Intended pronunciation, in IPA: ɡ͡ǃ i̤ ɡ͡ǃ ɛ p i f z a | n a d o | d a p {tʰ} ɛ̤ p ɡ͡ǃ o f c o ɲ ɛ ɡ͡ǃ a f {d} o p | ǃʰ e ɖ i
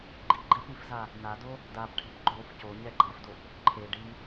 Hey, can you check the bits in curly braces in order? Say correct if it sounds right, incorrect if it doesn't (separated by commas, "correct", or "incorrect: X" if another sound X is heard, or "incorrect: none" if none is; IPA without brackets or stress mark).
incorrect: ʈʰ, correct